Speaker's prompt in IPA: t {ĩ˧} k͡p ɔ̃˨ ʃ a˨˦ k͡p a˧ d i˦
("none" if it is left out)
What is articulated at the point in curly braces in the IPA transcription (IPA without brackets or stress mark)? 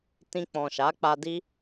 ĩ˧